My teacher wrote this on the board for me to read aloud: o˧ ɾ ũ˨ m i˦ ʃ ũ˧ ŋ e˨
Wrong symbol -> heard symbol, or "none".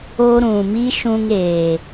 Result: e˨ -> eː˨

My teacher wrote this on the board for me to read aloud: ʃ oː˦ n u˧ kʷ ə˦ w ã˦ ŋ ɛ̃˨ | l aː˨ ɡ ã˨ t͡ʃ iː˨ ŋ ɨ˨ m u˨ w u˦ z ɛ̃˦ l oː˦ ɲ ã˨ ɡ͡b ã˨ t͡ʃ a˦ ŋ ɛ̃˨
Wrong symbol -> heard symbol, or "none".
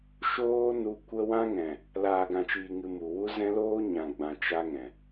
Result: none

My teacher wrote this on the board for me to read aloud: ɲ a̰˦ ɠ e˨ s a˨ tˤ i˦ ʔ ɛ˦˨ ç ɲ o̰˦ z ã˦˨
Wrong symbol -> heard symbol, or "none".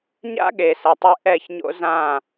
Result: i˦ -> e˦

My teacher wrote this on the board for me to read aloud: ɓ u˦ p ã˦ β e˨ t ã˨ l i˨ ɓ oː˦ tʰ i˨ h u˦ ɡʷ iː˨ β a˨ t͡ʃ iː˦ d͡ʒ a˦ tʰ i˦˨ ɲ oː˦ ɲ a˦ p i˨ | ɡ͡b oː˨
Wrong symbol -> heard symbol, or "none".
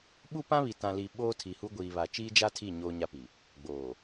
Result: e˨ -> i˨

